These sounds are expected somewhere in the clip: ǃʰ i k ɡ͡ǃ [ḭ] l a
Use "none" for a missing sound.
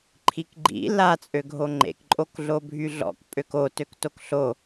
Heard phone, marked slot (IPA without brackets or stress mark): ḭ